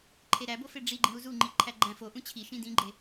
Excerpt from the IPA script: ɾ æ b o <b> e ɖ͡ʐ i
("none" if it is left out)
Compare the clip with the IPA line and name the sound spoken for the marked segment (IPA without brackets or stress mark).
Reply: f